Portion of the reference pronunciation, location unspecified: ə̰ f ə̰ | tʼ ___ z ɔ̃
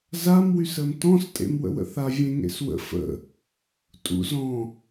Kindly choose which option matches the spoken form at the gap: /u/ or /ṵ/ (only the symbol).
ṵ